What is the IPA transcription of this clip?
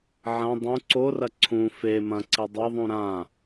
ʕɐ̃ dˤũ ǀorɐ ǀʰũ fe mɐ̃ǀi dˤeðˤũ ɾã

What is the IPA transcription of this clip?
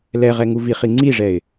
lɛʁɛ ŋuviχi ŋ͡ǀiʐɛɪ̯

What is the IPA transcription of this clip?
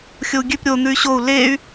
xʲou̯ɡʲʉp ɾʲo n̪ʉy̯ɕou̯ ley̯

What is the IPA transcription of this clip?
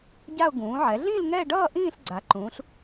ɟa˥˧ʊ̯ ɡũː˩˧ʕɛ˩˧ɮĩ˥˧l ŋɛ˥˧ ɖʌː˥˧ ʔĩː˥˧ɬɡ͡ǀa˩˧ǃũː˩˧ɬ

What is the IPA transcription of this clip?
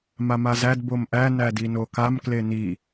mamazæd bomʔæ nædinokam kleni

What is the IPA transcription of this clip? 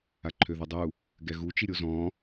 aǃʰøðodˤu | ɡɛɣut͡ʃi ɾʲozɔ̃

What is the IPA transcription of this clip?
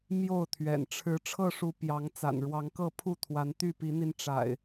mjo˥˨ʊ̯t̪ʰɥɛ̰˨˩n ʈ͡ʂʰɻ̩˨˦ ʈ͡ʂʰɤ˥˨ʂu˨˦ pjɑ˨˦ŋt͡sa̰˨˩n ɻwɑ˨˦ŋkɤ˥˨pʰu˥˨t̪ʰwa˨˦n t̪y˥˨pi˨˦n̪i˧n ʈ͡ʂa̰˨˩ɪ̯

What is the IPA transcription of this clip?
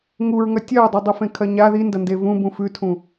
ŋuɹŋɐ tʲɐɹdˤudˤifẽ kʰɐɲa ðindɐnde vũbũ fʉtʰũ

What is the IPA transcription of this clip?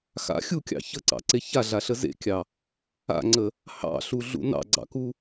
xa̰ xʲukʲɑ̰ çəǀɑ̰ǀe çaɮaɬə zḛkʲɑ | a̰ŋ͡ǀə | hɑ̰ɬuɮṵ nɑ̰ɡ͡ǀɑ̰ku

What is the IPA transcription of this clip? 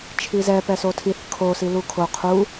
t͡ʃʰizɛ pɛsotʰiθ kʰo silukʰo qʰu

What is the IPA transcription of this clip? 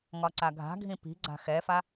ŋɒǀaɡʱa̤ɡʱĩ pi̤ɡ͡ǀa̤ xɛfa

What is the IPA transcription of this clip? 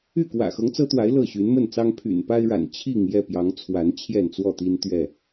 y˥˨ kwä̰˨˩xɤ˦ŋt͡sɤ˦t̪wa˨˦ɪ̯ lɤ˥˨ɕy˨˦nmə˥˨nt͡sɑ˦ŋ pʰy̰˨˩npa˦ɪ̯ɻa̰˨˩n t͡ɕʰi˥˨ŋ jɛ˥˨pjɑ˨˦ŋt͡sʰwa˨˦n t͡ɕʰjɛ˥˨nt͡swɔ˥˨t̪i˦nt̪ɥɛ˥˨

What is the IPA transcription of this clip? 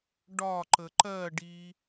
ɖɒ ǃəǃɜɖi

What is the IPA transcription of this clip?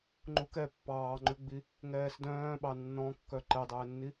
ŋ͡ǃukɛ pːɑːŋ͡ǃʉɡ͡bi | ŋɛːsdœ̃ːɓɑ nːɔ̃ kːœǃɛdˤɛːnːi

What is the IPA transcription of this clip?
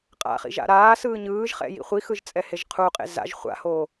qʼa̰χḭʒa̰ ɾaːsɯː ɲɯːʒχɛ̰jḭ χʷixɯʒt͡sʼɛheʒ qʰuqʼḛ za̰ʒ χʷa̰hoː

